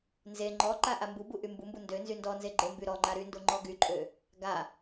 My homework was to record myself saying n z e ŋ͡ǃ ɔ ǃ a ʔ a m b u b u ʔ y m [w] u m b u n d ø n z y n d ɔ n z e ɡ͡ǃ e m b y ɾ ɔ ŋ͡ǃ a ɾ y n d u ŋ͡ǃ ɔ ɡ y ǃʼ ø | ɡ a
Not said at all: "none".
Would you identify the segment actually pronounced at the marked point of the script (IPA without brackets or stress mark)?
b